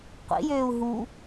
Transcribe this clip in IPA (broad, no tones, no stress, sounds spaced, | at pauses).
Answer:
qʷ ḭ j øː u̯ ɦ u